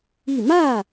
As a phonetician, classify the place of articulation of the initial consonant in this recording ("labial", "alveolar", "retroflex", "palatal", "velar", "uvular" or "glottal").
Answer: labial